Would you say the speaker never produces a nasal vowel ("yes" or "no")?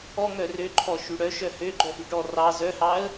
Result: yes